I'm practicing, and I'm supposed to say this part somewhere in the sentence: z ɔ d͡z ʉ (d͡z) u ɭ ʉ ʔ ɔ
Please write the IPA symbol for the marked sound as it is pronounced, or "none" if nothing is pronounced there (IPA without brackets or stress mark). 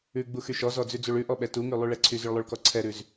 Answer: d͡z